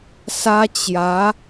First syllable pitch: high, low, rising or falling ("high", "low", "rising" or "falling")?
high